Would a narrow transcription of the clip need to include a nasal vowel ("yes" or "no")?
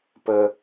no